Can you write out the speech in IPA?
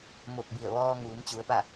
m o˧˩ k̚ b i˧˩ ə̯ ʋ ɔː˧ ŋ uː˩˧ m t͡ɕ u˩˧ ə̯ p a˥˨

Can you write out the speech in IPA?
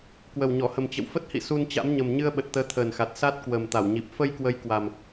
k w ə˨˩ w ɲ ɔ˧˩ h ə˨˩ m t͡ɕ ə̰˧˨ w f ə˦˥ t̚ h ḭ˧˨ s u˧ n t͡ɕ a̰˧˥ m ɲ ə˨˩ m ɲ ɨ˧ ə̯ ɓ ə˨˩ t̚ t̪ əː˨˦ t̪ʰ əː˨˩ n x a˨˩ t̚ s a˦˥ t̚ k w ə˨˩ m t̪ a˧˩ w ɲ i˨˩ p̚ f ə˧ j k w ə˨˦ j k w a˨˩ m

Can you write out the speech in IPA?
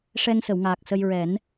ʂ ɛ˧ ŋ s ə˨˩˨ w ŋ aː˨˩ k̚ s ə˧ j ɹ ɛ˨˩˦ n

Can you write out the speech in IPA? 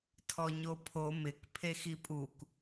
tʰ ɔ ɲ o pʰ o m ɪ k pʰ e x i pʼ u k

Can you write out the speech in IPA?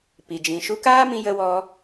p i˨ d͡ʒ ĩ˨ ʃ u˧ k aː˦ m ĩ˧ j ə˧ w ɔ˧

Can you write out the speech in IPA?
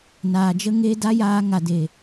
n aː˨ d͡ʒ ə˦ ŋ e˦ d a˦ j aː˧ ŋ a˨ d e˨

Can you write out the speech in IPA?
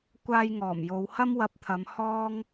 kʷ aː˧ j ŋ ɔː˨˩ m j o˨˧ w h ɐ˥ m w ɐ˧ p̚ t̪ʰ ɐ˨˧ m h ɔː˥ ŋ

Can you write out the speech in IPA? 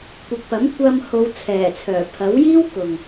kʷ ɪ˨ k̚ p ɐ˨˥ m kʷ ɐ˧ m h o˨˧ w t͡sʰ ɛː˨˩ t͡sʰ œː˨˩ pʰ ɐ˨˥ w j iː˥ w k ʊ˨ ŋ

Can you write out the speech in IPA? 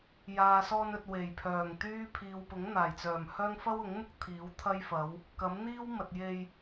j aː˨ s ɔː˧ n ɵ˨ t̚ w e˨˩ j pʰ œː˨˩ ŋ t̪ yː˥ pʰ iː˨ w p ʊ˨˥ ŋ n̪ aː˨˩ j t͡s œː˨˩ m h œː˥ ŋ f ɐ˥ w ʊ˨˥ ŋ m ʊ˥ k̚ t̪ʰ iː˨˥ w t̪ʰ ɐ˥ j f ɐ˨˥ w | k ɐ˨˥ m n̪ iː˥ w m ɐ˨ t̚ j e˧ j

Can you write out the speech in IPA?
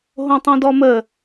ɦ õ tˤ õ d ɔ m ə

